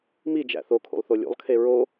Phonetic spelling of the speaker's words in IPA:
mid͡ʒæ̰ θokʰṵlˠθo lʲṵlˠkʰe ɹo

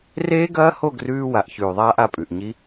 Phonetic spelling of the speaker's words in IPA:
reː˦ɡɐː˦ho˦˨ ɡrʉː˦wa˨ʔ çʉː˨ðˤaː˦ʔa˨˦pʼʉ˨ʔ ɲi˦

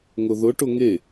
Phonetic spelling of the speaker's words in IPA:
ŋʊðʊʈʊ ŋe

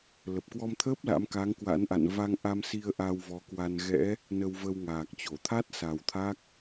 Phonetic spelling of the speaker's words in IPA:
lə˨˩p̚kwɔ˧mt̪ʰəː˦˥p̚ la̰˧˥mka˨˦ŋkwa̰˧˥nʔa̰˧˨n va˧ŋʔa˧msi˧ə̯ ʔa˧wvɔ˨˦kwa˧n ɣɛ̰˧˥ | nə˧wvə˧wŋaː˨˩k̚t͡ɕo˧˩ t̪ʰa˦˥t̚sa˨˩w t̪ʰa˦˥k̚

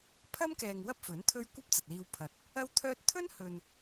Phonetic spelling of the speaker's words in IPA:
pʰɐ˥mkɛː˨ŋ wɐ˥p̚fɵ˨˥n t̪ʰɵ˥ɥ kʷɐ˥p̚t͡sɐ˨t̚liː˧wpʰɐ˨t̚ | ɐ˥wt̪ʰœː˥t̚ t̪ʰɵ˥n hɵ˨n

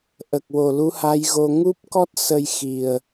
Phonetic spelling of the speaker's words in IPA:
ʔə˨˩k̚ wo˨˩lu˧˥ha˧˥jɣo˧ ŋu˦˥p̚kɔ˦˥t̚ sə˧jxi˨˩ə̯

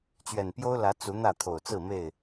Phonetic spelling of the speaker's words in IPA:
t͡ɕɥɛ˨˩npjo˦ʊ̯lä˨˦ t͡su˨˦ n̪ä˥˨t̪ʰo˨˩ʊ̯t͡sɹ̩˥˨me˥˨ɪ̯

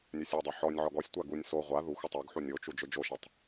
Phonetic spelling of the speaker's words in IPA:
nʲøsʲodˤø ħɔnʲʕɔɡ ɔsʲtʷa ɡunʲ so ʁʷa ðuxʷ otˤøɡħu nʲot͡ʃu d͡ʒød͡ʒoʃatˤ

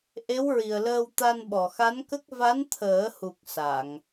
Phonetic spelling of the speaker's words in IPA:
ʔe˧˥wɹi˨˩ə̯ləː˧w t̪a˧nɓɔ˨˩xa˧˥nkə˦˥k̚ va˧˥nt̪ʰəː˨˩˦hu˨˩k̚ sa˨˩˨ŋ

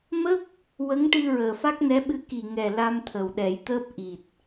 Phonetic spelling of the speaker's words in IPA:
mə˦˥k̚ | wə˧˥ŋʈɨ˧ ɹəː˨˩fa˦˥k̚nɛ˧˥ɓɨ˧˥ ki˨˩ŋɛ˨˩ la˧m t̪ʰə˨˩wɗɛ˨˩˦jt̪əː˦˥p̚ ʔi˨˩t̚

